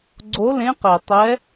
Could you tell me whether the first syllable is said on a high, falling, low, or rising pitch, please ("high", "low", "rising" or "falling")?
rising